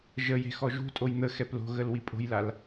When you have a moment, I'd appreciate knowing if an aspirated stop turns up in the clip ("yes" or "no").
no